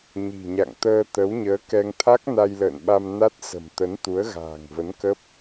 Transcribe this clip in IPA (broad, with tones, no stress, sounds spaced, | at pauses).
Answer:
ɲ i̤˨˩ ɲ a̰˧˨ ŋ t̪ əː˧ t̪ ə˨˦ w ɲ əː˨˦ k ɛ˧ ŋ t̪ʰ a˦˥ k̚ n a˧ j l ə̰ː˧˨ n ɓ a˧ m n a˦˥ t̚ s ə̤˨˩ m t̪ ə˨˦ n t̪ u˨˦ ə̯ ɣ a̤ː˨˩ ŋ v ə˨˦ n k ə˦˥ p̚